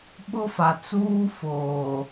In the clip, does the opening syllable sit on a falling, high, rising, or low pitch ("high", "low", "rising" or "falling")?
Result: high